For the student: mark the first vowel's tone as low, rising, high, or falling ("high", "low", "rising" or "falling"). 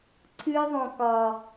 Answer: high